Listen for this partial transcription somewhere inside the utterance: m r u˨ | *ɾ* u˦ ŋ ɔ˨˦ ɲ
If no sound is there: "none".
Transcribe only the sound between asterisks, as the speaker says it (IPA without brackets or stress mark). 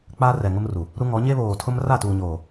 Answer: ɾ